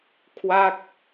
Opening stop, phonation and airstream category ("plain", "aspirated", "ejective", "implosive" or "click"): aspirated